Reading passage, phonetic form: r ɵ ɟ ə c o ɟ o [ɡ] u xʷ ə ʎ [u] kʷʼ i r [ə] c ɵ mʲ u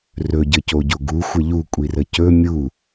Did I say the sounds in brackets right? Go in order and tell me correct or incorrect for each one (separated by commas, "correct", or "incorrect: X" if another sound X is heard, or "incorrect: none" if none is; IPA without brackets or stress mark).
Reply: correct, correct, correct